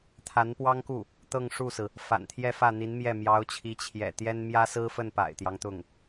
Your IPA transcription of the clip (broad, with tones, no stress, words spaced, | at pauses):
t̪ʰa˧˥npwɑ˥ŋku˥˩ | t̪ɤ˥˧ŋʂu˥˩sɹ̩˩ | fa̰˨˩nt̪ʰjɛ˥˧fä˥˩n̪i˧˥n mjɛ˥˩ mjɑ˧˥ʊ̯t͡ɕʰi˧˥ t͡ɕʰjɛ̰˨˩t̪jɛ˥n mjä˥sɹ̩˥fə˥˩n pa̰˨˩ɪ̯t̪jɑ˦ŋt̪ʊ˥˩ŋ